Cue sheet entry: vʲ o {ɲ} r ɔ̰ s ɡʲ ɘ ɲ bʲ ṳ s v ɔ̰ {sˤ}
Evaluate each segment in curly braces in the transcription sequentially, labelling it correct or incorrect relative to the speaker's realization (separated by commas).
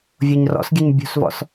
correct, incorrect